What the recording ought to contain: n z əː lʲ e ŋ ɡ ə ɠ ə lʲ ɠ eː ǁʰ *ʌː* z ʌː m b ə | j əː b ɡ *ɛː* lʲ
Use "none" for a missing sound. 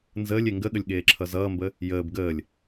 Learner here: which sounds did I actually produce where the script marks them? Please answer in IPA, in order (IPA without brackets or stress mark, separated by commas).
ʌ, əː